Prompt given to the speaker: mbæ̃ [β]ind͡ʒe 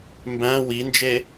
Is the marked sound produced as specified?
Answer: no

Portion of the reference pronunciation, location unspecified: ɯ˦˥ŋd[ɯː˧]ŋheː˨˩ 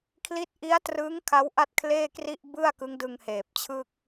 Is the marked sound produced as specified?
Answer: no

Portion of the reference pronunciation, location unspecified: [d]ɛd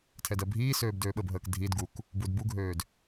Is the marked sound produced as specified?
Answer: no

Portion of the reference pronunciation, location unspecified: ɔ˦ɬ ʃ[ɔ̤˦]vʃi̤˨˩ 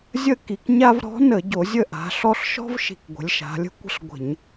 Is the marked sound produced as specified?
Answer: yes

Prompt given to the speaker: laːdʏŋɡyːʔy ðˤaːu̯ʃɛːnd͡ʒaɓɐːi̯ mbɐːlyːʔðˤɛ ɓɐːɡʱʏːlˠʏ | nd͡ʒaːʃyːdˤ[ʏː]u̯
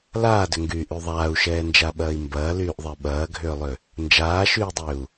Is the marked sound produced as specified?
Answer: yes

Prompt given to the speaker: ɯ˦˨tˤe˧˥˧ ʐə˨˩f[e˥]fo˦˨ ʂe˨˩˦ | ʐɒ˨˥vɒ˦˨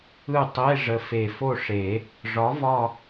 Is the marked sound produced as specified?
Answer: no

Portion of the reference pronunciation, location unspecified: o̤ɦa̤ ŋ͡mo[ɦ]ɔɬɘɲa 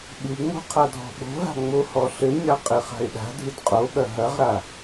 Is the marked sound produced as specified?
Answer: no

